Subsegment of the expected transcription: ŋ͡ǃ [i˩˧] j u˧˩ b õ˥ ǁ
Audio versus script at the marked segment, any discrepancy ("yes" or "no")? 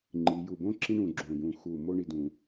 no